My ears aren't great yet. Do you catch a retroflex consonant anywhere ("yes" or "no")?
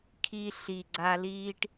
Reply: yes